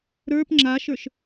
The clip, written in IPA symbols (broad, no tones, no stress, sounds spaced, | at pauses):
ɾ ə˞ p ŋ͡ǁ a ʃ ə˞ ʃ